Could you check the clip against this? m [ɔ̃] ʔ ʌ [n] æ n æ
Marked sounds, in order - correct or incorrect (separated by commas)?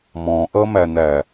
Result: correct, incorrect